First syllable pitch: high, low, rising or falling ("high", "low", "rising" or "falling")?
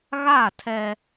falling